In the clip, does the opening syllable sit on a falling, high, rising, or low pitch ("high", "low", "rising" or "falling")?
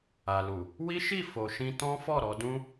low